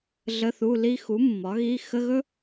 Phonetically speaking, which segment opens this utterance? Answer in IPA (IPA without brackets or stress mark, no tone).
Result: ɮ